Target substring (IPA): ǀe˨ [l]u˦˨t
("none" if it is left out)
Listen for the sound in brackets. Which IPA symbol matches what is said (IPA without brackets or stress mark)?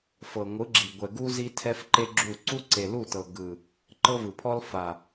l